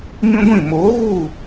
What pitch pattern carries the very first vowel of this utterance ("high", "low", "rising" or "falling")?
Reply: high